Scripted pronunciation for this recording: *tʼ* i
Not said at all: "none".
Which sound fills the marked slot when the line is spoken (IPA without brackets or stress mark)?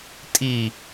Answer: tʼ